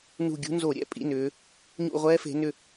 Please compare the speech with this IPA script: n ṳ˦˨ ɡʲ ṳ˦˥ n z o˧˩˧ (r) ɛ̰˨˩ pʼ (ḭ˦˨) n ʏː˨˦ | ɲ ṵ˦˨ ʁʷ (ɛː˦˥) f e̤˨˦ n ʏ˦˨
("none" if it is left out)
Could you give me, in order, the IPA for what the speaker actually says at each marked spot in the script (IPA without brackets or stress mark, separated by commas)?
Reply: ɾʲ, ḭ˧˥˧, ɛː˦˥